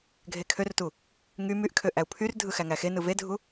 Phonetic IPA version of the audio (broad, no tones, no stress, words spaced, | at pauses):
ɡʱekʰørtu | ŋy myʔkʰø ʔæu̯pʰyrdʱɯ xæŋæxenɯ vedʱu